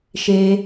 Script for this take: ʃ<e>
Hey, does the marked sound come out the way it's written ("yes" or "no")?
yes